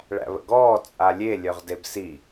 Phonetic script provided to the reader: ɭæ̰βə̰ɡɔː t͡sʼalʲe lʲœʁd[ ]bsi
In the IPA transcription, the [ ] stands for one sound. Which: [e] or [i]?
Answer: e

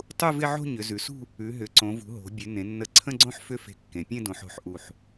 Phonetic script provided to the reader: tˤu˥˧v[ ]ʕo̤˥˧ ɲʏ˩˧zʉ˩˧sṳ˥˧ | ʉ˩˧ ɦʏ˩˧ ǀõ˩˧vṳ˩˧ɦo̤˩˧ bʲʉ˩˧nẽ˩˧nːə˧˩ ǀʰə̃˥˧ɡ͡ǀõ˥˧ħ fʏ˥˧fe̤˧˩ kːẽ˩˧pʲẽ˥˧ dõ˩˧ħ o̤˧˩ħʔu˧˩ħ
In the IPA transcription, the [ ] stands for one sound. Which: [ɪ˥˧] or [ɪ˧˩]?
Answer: ɪ˥˧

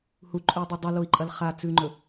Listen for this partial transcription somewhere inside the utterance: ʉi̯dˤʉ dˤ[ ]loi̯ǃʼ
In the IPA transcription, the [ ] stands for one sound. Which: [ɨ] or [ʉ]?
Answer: ɨ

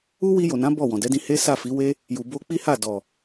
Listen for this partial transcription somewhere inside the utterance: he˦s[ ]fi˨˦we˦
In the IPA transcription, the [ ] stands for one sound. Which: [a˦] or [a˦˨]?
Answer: a˦˨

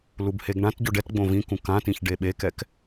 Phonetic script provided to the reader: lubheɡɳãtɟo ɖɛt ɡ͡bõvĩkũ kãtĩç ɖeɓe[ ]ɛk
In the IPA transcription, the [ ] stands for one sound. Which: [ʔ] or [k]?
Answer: k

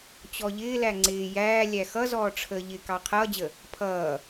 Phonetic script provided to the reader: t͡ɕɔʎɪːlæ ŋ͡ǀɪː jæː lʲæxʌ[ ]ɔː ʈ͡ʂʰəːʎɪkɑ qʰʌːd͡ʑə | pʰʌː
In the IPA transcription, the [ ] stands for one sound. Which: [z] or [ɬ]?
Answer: z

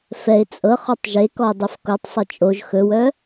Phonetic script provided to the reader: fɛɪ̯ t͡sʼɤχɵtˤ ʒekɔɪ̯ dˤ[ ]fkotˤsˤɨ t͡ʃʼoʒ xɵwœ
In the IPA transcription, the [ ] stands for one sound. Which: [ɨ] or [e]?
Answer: e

